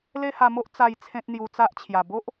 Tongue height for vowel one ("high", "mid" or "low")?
mid